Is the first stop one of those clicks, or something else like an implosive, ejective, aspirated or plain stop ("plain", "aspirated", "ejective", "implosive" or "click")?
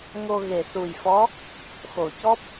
plain